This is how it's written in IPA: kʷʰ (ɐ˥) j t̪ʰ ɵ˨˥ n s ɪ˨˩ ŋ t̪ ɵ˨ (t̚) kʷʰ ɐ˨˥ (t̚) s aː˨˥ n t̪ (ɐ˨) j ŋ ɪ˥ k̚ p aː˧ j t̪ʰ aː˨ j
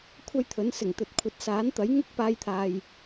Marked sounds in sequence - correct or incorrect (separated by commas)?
correct, correct, correct, incorrect